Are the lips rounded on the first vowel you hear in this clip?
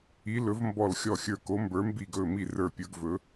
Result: no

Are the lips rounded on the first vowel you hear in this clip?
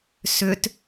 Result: yes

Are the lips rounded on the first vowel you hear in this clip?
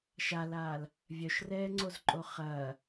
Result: no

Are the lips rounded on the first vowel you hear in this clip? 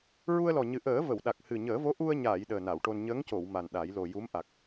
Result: yes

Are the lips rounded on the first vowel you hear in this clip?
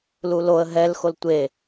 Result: yes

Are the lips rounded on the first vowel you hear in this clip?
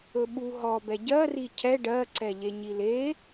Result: yes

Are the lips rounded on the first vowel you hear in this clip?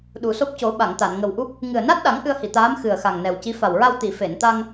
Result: yes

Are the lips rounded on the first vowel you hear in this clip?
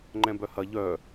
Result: no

